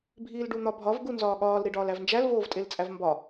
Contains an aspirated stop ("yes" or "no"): no